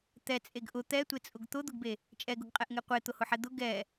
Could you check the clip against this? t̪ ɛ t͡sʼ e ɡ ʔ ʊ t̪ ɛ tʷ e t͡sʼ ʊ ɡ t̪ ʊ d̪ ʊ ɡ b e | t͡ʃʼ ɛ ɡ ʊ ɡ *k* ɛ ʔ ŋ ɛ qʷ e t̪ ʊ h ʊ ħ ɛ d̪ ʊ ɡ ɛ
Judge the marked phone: incorrect: qʼ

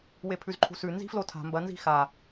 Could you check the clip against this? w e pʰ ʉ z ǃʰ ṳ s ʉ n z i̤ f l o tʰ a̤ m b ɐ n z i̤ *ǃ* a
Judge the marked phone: incorrect: x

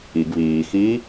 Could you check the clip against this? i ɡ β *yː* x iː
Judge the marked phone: incorrect: iː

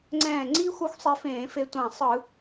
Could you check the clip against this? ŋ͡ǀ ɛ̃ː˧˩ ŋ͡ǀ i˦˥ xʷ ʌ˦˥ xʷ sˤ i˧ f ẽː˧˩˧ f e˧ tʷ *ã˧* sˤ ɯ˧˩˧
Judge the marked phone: incorrect: ã˧˩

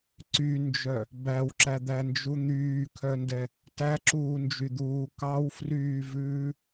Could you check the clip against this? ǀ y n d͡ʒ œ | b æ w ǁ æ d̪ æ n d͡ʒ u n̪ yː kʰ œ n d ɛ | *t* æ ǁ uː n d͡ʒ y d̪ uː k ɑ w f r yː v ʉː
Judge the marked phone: correct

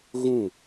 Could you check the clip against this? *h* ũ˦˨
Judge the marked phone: incorrect: ɣ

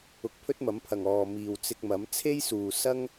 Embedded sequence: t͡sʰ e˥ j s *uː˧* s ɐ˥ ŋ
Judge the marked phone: incorrect: uː˨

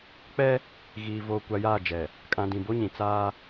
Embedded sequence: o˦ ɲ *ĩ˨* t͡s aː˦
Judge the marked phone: correct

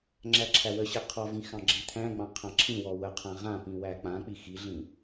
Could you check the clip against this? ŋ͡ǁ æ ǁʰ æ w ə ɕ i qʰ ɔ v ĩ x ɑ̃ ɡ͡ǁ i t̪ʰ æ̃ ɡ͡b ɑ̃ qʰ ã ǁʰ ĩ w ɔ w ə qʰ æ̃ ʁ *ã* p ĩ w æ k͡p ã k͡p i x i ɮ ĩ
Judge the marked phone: correct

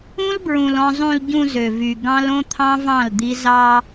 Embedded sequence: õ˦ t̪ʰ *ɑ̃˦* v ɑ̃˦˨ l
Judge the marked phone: correct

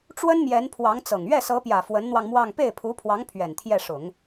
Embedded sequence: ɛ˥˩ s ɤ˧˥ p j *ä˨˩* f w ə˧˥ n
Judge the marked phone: correct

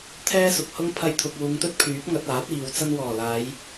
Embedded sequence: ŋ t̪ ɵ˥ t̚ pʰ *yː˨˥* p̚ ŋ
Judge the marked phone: correct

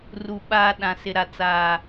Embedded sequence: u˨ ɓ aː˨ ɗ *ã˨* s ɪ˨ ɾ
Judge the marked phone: correct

